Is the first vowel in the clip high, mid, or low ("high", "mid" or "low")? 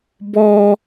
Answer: mid